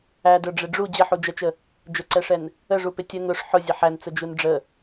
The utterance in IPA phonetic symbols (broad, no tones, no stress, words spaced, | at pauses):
ædə˞ ɖ͡ʐɪɖ͡ʐu d͡ʑəħud͡ʒɛt͡ʃə | d͡ʒəǀɛʂɛn | əʐupɪ tʲə nʊʂ ħʊ zʲəħænt͡səd͡ʒun ɖ͡ʐə